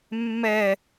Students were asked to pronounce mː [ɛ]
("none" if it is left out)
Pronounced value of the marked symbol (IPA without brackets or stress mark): ɛ